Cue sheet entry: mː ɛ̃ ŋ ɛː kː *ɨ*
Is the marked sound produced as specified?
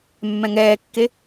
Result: no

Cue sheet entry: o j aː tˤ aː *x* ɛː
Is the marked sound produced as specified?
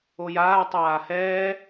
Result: no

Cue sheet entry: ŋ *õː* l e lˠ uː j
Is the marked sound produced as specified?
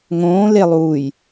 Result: yes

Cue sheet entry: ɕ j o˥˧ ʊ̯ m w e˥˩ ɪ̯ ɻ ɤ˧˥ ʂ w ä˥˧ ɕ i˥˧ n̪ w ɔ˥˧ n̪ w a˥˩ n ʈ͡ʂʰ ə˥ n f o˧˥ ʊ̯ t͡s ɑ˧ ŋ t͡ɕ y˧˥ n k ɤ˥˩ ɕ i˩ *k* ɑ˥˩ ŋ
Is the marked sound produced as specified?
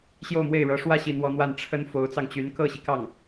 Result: yes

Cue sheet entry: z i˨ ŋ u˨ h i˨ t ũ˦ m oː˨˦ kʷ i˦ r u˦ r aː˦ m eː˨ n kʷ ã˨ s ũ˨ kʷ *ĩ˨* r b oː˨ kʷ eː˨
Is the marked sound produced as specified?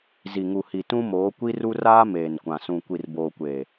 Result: no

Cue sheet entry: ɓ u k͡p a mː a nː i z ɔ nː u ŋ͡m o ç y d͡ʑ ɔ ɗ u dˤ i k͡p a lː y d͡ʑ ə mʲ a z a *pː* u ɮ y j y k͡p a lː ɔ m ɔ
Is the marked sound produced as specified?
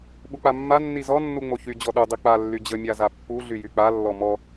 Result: yes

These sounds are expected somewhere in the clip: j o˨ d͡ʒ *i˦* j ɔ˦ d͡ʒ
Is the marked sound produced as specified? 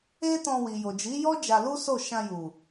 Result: no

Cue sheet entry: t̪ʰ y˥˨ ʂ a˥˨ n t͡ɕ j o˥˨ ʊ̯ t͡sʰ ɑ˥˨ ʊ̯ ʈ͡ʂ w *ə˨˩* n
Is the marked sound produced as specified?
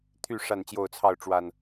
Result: no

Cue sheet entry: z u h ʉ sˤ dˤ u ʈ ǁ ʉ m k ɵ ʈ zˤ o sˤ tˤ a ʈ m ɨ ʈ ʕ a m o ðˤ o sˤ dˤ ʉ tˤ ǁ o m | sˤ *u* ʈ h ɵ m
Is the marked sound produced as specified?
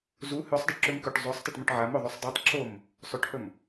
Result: no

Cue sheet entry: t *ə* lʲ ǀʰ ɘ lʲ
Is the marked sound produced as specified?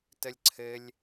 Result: yes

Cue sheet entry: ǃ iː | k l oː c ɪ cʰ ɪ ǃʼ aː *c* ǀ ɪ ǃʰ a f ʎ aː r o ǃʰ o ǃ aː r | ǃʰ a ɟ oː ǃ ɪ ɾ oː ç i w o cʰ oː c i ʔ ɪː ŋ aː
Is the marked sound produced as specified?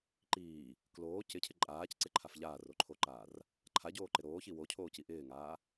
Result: yes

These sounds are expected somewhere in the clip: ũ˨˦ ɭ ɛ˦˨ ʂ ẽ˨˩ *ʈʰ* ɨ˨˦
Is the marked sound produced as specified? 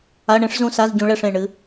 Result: no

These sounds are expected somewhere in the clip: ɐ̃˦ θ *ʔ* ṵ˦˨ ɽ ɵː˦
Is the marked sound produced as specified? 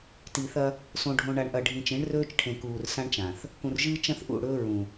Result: yes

